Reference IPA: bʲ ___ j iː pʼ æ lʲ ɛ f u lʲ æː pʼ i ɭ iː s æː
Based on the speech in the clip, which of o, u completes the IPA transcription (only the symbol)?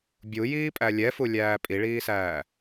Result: u